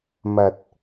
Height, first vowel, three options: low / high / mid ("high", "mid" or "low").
low